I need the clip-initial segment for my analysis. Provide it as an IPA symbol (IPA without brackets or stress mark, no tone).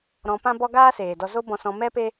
ɾ